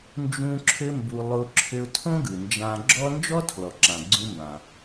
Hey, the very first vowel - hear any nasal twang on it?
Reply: yes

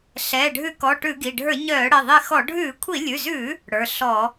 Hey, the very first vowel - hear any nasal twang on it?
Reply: no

